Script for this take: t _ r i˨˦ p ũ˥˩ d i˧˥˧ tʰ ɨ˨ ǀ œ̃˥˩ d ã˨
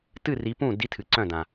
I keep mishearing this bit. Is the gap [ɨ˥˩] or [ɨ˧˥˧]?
ɨ˥˩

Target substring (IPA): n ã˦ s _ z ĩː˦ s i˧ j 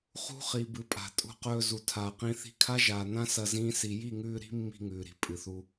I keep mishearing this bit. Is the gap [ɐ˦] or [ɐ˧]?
ɐ˧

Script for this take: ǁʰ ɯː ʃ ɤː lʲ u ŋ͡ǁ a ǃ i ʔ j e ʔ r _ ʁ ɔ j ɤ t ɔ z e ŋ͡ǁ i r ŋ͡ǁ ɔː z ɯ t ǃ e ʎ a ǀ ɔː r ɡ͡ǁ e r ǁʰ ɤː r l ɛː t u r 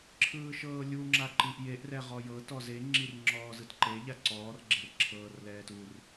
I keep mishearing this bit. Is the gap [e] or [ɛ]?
ɛ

